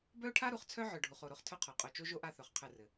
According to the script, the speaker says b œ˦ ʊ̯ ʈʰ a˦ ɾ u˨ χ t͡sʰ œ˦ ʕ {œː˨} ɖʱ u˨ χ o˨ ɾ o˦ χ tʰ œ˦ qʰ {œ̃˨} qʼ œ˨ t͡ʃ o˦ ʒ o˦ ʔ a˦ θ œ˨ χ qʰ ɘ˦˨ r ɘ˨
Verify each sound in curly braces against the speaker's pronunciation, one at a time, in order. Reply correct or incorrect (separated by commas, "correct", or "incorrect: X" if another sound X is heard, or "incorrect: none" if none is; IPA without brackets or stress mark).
incorrect: œ˨, incorrect: œ˨